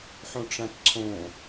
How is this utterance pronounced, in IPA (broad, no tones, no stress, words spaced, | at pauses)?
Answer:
ħõʈ͡ʂãtǀʰõ